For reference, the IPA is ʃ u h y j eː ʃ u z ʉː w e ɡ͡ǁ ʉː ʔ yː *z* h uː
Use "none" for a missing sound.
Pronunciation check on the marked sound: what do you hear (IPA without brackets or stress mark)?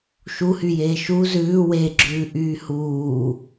none